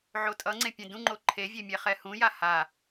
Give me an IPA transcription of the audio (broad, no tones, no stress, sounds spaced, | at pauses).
ʕ o tʼ ʌ ŋ͡ǀ ẽ pʲ ẽ d ũ ŋ͡ǃ o ǃʰ e vʲ e mʲ ɛ χ ɛ h ũ j a h a